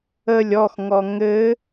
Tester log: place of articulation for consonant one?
alveolar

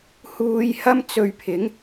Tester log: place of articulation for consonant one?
glottal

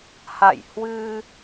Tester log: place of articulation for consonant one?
glottal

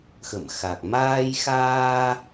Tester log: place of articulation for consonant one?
velar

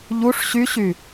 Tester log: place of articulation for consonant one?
palatal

